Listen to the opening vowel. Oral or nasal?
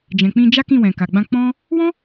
nasal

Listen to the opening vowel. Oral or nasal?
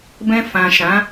nasal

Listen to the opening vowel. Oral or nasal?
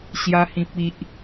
oral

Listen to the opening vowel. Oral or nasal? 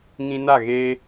nasal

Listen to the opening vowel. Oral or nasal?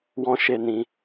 nasal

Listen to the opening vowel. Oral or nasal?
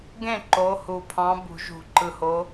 nasal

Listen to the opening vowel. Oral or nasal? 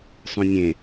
nasal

